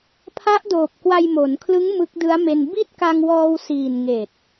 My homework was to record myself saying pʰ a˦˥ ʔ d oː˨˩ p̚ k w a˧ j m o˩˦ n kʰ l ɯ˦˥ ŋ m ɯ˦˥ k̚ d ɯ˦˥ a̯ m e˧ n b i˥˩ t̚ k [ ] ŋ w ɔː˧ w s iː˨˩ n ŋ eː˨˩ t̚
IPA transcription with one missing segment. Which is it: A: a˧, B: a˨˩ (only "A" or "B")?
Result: A